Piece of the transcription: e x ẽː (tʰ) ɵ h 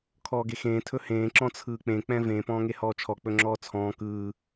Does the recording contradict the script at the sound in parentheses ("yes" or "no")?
no